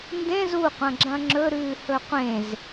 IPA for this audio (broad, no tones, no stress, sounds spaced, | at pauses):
n d ẽ z u qʷ ɐ̃ ɡ͡ǁ ɐ̃ ŋ͡ǁ ɵ ɾ ʉː h ɵ qʷ ẽ z